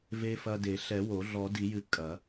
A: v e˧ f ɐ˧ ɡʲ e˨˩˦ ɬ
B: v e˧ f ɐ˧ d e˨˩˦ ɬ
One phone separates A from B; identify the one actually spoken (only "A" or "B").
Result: B